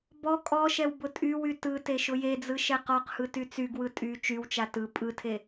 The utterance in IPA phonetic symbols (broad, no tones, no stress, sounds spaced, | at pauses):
b ɔ kʼ ɔ ʃ ɛ w b ʊ tʼ y w y t ɯ t e ʃ ʊ j e d͡z ɯ ʃ ɛ q ɔ q h ɯ t y t͡s y ɡ w ɯ tʼ y t͡ʃ y w t͡ʃ a t ɯ pʼ ɯ tʰ e